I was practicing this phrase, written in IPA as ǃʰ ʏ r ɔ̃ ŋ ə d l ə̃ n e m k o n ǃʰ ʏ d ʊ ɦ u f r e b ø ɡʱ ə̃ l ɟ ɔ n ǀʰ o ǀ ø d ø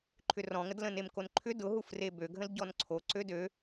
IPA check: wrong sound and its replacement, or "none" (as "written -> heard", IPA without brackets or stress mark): none